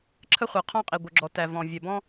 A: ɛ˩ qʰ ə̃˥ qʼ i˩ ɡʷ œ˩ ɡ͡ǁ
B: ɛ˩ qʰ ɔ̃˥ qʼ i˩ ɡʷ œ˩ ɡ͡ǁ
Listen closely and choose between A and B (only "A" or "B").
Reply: B